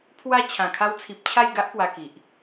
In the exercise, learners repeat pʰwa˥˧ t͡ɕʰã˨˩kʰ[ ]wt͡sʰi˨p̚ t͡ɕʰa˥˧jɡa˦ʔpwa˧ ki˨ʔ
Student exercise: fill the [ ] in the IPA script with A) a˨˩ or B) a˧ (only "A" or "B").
B